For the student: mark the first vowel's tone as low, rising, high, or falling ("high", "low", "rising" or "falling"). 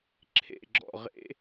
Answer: falling